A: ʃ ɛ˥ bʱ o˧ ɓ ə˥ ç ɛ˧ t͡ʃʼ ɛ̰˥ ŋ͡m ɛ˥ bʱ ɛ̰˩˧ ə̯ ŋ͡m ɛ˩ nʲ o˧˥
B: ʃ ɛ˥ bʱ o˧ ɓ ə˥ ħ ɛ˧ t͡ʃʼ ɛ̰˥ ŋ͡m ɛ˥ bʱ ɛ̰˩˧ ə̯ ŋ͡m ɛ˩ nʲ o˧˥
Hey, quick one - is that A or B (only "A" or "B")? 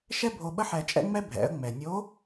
B